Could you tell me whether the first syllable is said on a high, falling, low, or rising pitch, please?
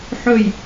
falling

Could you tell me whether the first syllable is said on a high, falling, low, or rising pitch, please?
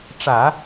low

